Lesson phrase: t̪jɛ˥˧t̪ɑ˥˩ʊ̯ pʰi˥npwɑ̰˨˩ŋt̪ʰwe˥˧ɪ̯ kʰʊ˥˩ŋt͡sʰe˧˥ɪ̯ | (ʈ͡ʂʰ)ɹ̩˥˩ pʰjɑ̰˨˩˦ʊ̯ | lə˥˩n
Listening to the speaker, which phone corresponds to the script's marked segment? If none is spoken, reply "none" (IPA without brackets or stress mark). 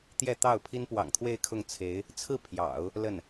t͡sʰ